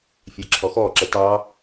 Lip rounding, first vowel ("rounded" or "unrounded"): unrounded